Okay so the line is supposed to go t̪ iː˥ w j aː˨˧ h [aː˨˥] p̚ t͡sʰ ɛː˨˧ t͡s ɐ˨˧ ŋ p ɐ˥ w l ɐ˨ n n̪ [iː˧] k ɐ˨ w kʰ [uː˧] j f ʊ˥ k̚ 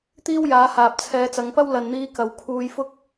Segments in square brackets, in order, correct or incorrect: incorrect, correct, correct

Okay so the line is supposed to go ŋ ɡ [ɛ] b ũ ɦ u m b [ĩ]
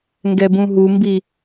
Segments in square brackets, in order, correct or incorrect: correct, incorrect

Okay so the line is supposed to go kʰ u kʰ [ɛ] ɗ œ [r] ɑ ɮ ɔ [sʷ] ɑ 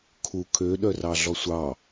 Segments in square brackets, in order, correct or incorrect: incorrect, correct, correct

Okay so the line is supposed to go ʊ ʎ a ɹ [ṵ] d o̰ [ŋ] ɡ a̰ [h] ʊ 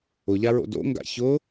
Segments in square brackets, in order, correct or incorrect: incorrect, correct, incorrect

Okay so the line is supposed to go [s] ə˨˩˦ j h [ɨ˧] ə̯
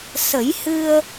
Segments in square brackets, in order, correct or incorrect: correct, correct

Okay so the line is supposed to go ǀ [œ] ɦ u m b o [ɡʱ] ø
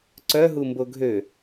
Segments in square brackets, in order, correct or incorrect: correct, correct

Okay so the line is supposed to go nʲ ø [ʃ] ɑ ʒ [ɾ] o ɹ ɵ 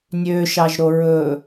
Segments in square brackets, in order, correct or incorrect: correct, correct

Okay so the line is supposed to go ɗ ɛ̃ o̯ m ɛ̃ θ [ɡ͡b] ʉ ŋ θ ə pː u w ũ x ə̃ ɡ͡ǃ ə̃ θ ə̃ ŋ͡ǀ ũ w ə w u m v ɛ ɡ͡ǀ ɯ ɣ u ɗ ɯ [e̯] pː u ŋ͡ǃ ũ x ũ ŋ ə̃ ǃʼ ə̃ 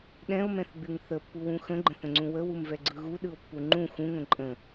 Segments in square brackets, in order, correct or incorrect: correct, incorrect

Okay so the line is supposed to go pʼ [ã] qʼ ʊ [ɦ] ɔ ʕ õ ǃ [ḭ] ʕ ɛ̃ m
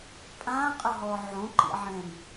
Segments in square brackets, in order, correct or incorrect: correct, correct, correct

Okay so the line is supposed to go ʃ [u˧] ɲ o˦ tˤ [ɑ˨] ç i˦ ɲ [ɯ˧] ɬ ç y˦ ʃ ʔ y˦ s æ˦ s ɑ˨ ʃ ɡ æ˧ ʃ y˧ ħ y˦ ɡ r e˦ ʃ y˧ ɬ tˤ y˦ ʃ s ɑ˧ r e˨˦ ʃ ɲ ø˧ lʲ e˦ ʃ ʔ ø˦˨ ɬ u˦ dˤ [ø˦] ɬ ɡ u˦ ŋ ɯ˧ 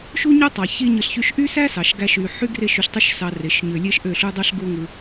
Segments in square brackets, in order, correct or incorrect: incorrect, correct, correct, incorrect

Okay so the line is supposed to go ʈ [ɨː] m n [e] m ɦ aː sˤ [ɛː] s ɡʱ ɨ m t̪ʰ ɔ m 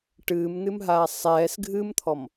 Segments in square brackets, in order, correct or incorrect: correct, incorrect, correct

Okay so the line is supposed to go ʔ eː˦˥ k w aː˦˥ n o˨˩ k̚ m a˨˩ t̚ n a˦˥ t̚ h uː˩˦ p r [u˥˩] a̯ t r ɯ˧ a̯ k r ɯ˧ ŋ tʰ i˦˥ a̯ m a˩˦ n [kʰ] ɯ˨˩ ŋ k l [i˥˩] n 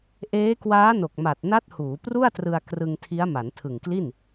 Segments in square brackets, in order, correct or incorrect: correct, incorrect, correct

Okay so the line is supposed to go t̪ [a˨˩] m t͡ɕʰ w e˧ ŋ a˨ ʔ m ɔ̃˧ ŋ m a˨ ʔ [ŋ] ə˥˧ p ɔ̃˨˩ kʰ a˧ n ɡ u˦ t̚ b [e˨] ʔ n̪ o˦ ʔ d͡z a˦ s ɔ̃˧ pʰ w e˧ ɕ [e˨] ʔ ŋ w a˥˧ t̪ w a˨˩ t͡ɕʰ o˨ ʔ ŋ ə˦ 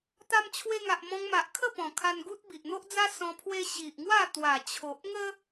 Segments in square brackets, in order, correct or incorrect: incorrect, incorrect, incorrect, incorrect

